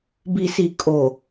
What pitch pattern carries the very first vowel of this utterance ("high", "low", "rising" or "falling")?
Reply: low